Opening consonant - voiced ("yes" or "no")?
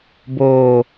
yes